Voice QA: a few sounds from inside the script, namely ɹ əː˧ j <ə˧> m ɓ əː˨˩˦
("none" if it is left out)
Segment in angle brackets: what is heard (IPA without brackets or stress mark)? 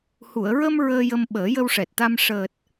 ə˧